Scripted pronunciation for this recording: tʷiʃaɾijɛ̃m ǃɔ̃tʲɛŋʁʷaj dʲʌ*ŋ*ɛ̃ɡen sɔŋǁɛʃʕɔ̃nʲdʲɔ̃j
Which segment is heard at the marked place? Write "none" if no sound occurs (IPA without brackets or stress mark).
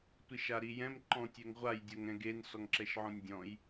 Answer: ŋ